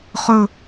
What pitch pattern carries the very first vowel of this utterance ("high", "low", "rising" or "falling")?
falling